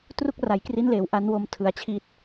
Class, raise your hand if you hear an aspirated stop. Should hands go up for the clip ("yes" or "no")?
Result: yes